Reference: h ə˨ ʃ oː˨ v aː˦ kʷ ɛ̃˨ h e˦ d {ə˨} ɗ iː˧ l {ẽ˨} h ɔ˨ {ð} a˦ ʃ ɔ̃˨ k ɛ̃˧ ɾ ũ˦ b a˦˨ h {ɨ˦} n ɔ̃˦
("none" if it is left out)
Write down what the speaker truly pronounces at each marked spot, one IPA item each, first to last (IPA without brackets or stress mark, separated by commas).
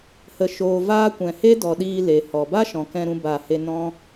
ɔ˨, e˨, b, e˦